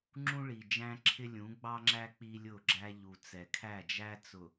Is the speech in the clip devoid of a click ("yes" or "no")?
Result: no